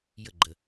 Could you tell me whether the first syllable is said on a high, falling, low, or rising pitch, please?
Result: falling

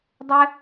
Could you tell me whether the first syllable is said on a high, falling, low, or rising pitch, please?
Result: high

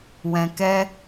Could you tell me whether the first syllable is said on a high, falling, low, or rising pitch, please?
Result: low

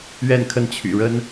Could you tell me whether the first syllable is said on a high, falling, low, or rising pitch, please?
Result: falling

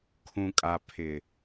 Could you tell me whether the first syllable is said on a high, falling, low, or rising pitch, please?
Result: low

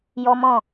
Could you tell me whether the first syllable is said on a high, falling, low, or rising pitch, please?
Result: high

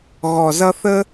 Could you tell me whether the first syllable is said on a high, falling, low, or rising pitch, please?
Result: low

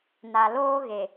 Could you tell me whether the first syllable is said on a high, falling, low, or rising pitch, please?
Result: low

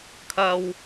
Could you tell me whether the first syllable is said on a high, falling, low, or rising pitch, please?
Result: low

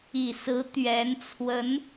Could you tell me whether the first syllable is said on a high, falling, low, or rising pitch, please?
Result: low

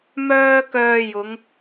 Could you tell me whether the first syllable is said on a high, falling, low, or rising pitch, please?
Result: high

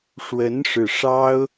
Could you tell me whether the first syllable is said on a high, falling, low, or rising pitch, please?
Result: rising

